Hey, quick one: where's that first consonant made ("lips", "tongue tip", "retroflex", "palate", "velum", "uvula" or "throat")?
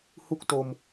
throat